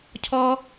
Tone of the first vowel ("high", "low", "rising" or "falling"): high